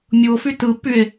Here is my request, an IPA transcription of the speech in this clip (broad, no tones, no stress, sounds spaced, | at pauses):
mʲ u o̯ f y t ɯ pː y e̯